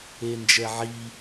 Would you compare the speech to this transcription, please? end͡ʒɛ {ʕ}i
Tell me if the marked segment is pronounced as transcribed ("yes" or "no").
yes